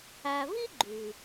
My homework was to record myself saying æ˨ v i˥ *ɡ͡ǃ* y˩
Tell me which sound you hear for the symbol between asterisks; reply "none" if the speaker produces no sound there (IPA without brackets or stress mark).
ɡ͡ǃ